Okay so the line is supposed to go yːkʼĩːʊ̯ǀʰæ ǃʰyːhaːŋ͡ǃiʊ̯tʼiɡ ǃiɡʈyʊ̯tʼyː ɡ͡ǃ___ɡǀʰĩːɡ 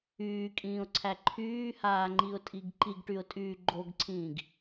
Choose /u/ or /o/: o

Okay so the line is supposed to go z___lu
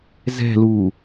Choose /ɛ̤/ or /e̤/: ɛ̤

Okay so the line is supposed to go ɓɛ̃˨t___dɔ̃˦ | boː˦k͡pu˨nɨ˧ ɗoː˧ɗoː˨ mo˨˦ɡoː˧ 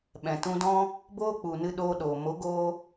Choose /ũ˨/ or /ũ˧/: ũ˧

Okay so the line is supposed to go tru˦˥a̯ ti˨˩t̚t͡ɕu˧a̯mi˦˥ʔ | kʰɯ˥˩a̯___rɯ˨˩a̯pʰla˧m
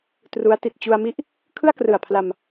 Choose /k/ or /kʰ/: k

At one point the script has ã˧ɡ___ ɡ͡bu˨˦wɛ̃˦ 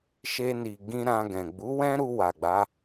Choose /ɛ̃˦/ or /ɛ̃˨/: ɛ̃˨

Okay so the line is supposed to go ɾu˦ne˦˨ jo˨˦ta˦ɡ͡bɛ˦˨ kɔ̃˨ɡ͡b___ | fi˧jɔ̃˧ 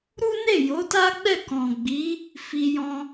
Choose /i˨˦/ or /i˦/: i˨˦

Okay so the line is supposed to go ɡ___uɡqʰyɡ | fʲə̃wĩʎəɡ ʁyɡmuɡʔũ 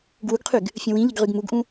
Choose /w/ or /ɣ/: w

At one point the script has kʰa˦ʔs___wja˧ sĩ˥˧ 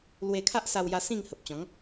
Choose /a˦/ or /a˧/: a˧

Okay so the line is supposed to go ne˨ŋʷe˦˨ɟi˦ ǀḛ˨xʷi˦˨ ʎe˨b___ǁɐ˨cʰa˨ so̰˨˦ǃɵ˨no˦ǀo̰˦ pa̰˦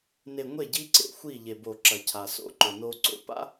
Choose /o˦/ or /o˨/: o˨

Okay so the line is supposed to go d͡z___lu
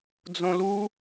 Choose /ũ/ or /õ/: õ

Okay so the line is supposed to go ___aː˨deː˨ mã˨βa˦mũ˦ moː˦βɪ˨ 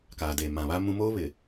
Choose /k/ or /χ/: k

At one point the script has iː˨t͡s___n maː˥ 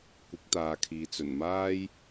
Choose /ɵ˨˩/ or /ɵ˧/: ɵ˨˩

